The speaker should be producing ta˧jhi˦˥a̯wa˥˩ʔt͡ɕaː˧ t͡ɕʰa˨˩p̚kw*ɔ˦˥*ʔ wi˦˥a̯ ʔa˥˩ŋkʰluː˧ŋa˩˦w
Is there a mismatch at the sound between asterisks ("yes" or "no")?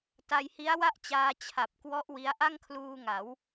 no